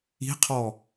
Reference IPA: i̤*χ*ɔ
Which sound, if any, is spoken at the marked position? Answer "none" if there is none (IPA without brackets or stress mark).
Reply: qʰ